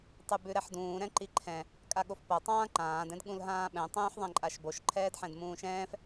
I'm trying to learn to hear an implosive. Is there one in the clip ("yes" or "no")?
yes